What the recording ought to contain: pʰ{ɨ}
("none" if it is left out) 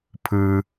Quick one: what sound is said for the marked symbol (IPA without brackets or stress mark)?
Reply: ɨ